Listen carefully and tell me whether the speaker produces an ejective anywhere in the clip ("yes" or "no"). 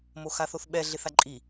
yes